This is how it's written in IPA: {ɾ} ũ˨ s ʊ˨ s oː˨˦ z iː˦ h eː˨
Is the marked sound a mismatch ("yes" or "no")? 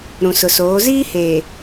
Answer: no